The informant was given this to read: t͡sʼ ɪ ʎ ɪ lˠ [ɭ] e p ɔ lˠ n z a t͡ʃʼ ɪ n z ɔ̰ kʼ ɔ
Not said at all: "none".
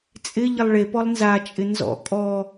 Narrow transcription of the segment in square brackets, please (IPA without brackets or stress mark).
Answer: ɭ